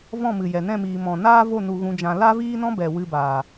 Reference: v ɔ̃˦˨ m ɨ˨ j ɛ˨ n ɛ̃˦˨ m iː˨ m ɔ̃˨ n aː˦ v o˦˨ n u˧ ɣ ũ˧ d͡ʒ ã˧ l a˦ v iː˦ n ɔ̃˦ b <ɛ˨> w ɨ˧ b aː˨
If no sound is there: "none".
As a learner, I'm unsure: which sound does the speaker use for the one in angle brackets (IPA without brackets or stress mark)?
ɛ˨